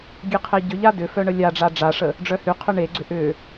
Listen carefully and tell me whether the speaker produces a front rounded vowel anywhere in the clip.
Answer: yes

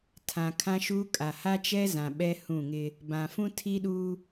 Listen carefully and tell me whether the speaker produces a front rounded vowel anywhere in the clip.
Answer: no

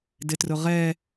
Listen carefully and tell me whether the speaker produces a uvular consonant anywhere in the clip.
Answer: yes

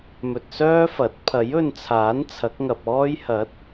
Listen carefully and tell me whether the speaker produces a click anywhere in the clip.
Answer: no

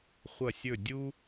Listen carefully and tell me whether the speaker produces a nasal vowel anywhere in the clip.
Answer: no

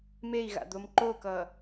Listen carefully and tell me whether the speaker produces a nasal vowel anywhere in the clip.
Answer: no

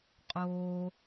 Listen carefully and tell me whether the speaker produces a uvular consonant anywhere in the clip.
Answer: yes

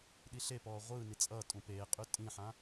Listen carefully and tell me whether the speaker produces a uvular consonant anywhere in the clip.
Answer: yes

